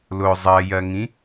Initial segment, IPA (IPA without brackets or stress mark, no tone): l